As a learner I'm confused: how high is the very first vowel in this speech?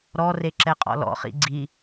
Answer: mid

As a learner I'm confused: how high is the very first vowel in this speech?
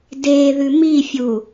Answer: mid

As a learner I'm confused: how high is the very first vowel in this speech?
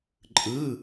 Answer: high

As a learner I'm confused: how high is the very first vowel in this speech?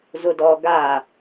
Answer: high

